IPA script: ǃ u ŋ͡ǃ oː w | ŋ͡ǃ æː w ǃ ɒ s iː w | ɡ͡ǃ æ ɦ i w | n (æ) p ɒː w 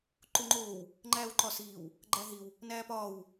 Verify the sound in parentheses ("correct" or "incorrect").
incorrect